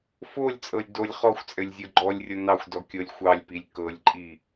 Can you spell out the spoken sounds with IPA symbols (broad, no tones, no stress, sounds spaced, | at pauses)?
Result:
f o lʲ t͡sʼ ɤ lʲ d o lʲ χ ɔ xʷ t͡sʼ ɘ lʲ zʲ o ɡ͡ǃ ɔ lʲ rʲ o n ɑ xʷ d ɔ kʲ ɤ lʲ xʷ ɑ lʲ p i lʲ k ɤ lʲ ǃʼ i